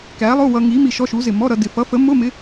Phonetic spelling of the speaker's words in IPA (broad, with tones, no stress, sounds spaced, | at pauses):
k æ˨˥ lˠ ʊ˧˥˧ w ʌ˧ ŋ i˨˥ m i˧ ʃ ɔ˧˥˧ ʃ u˨˥ z ɪ˧˩ m ɔ˧˥˧ ɾ ʌ˧ d ɪ˧˩ f ʌ˨˥ f ə˨˥ m ʊ˧˥˧ m ɪ˨˥